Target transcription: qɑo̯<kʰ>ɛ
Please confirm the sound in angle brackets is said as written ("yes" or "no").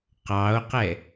no